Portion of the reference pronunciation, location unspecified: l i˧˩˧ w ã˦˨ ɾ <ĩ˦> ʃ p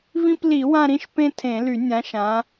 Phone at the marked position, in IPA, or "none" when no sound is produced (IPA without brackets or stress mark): ĩ˦˨